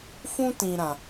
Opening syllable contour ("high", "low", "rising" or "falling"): high